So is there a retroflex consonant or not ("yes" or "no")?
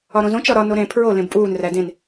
no